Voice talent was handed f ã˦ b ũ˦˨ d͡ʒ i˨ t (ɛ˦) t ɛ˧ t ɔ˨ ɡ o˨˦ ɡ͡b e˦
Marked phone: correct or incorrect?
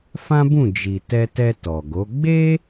incorrect